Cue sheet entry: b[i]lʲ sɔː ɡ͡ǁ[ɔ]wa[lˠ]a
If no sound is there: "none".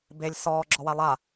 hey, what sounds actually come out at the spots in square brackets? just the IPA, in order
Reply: e, ɔ, lˠ

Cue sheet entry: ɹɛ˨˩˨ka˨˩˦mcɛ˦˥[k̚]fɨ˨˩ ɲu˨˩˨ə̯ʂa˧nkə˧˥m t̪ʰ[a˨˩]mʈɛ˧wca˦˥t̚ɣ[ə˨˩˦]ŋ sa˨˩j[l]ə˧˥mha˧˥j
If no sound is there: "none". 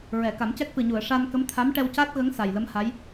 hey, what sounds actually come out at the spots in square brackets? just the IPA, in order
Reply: k̚, a˧˥, ə˧˥, l

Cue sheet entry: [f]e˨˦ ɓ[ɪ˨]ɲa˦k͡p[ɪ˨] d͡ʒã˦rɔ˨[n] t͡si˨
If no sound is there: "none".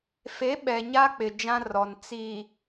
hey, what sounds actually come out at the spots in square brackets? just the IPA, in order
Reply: f, ɛ˨, ɪ˨, n

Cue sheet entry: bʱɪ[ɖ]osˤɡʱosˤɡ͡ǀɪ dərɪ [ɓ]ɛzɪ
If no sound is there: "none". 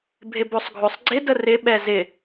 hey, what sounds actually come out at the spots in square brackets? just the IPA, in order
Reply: b, ɓ

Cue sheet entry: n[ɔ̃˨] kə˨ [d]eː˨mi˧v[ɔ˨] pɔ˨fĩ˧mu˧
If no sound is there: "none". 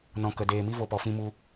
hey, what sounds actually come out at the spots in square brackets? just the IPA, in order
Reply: ɔ̃˨, d, o˨

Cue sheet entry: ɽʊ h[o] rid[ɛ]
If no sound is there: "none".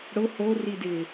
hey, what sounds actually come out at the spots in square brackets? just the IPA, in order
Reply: o, ɪ

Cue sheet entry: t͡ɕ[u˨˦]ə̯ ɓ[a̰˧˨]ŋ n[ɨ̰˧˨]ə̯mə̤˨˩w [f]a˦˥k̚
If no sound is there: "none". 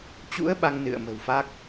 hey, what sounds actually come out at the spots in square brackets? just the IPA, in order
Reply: ṵ˧˥, a˧, ɨ̰˧˨, f

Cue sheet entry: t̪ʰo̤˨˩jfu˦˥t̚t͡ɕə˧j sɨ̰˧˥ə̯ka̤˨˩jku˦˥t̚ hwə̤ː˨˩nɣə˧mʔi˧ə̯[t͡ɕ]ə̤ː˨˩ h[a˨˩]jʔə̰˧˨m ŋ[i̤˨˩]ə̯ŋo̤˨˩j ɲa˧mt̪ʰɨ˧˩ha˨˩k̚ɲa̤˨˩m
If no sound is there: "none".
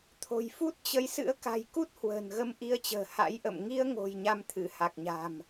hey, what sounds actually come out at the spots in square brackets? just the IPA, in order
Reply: t͡ɕ, a̰˧˥, i˧

